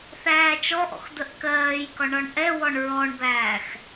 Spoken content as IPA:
θ æː t͡ʃ ɔ ʔ ɔ̰ x d̪ ə ʔ k ɜː j k ɒ ɳ ɒ ɳ ʔ ɛ w ɔ ɳ ɹ ɔ ɳ b æː x

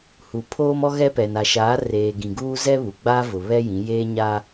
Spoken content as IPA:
h u˨ pʰ oː˦ m ɔ˦ ɣ ɛ˦ p ɛ˨ n a˨ ʃ aː˨˦ r eː˨ ɡ ĩ˨ ɡ uː˦ z ɛ˦ β u˨ ɡ͡b a˦ v ʊ˨ β ɛ˦ j ĩ˨˦ j eː˦ ɲ a˦

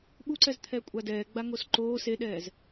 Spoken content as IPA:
ɓ u ǀ ɛ z t̪ʰ ɛ kʷʼ a d ɛː ɡ͡b a ŋ o s ǃ oː s e ɗ ɛː z

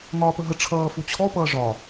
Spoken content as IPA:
ŋ ɒː p ə ɦ ə ʈ͡ʂʰ ʌː f u t͡ɕʰ ɔ p ʌː ʐ ɒ

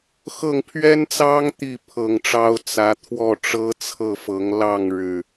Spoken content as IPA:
x ɤ˥˨ ŋ pʰ ɥ ɛ˦ n t͡s ɑ˦ ŋ t̪ i˥˨ pʰ ɤ˨˩ ŋ ʈ͡ʂ ɑ˦ ʊ̯ t͡s ä˨˦ t̪ʰ w ɔ˥˨ ʈ͡ʂ ɤ˦ t͡sʰ ɤ˥˨ f ɤ˨˦ ŋ l ɑ˥˨ ŋ ɻ ɻ̩˨˩

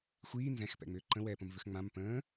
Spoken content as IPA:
xʷ iː n z ɛ̃ x p ɛ̰ ŋ͡m ʏː ǃ ə̃ w ɛː p ə̃ m v ʏ x ŋ͡m ã m p ə̃ː

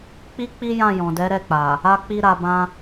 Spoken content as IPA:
k͡p i˦ k͡p i˦ j ã˦˨ j ɔ̃˨ d ɛ˨˦ ɾ ɛ˦˨ k͡p a˨ | a˦ k͡p i˦ ɾ a˧ b ã˦

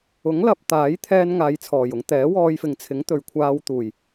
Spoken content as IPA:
ʊ˨˥ ŋ l ɐ˧ p̚ t̪ aː˨˥ j t̪ʰ ɛː˧ n ŋ aː˨˧ j t͡sʰ ɔː˨˩ j ʊ˧ ŋ t̪ ɛː˨˥ w ɔː˧ j f ɪ˨ ŋ t͡sʰ ɪ˨˥ ŋ t̪ ɵ˨ ɥ kʷʰ aː˧ w t̪ uː˨˩ j

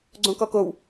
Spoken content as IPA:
ɡ͡ǀ õ k ɔ k o w

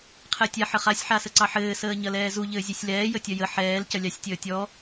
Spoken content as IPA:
qʰ ɛ tʲ a ħ ə χ a sʲ ħ a s ə ǀ ɑ ħ ɘː s əː ɲ ɐ l ɛː z u ʎ ɘː zʲ ɛ sʲ l ɛː j ə tʲ ɐ j ə ħ ɛː l c ɐ lʲ ɑ sʲ tʲ əː tʲ ɔ

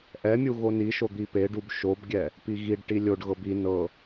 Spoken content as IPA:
ʔ ɛ mʲ u ɣ o n i ʃ o d̪ i p e ɖ u b ʃ o b ɡʲ ɛ | p i ɣ i ɖ ʈ i lʲ o ɖ ɣ ɤ b i n ɤ

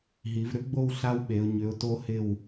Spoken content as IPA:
ɦ i˩˧ v ɾ ʏ˥ ɡ͡b o˥˧ w ɬ a˥ w ɓ e˩˧ ʊ̯ ɲ ʏ˩˧ ʊ̯ t o˧ h ɪ˧˩ w

